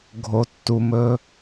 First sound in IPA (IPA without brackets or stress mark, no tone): ɡʱ